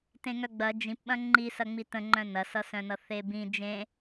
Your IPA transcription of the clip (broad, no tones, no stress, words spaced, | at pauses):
tẽŋœɡ͡bɐ d͡ʒĩpɓɐ̃ ŋ͡ǃisɐŋ͡mi tə̃ŋ͡ǃœ̃ nɐsʌsœ̃nʌ θebĩ d͡ʒẽ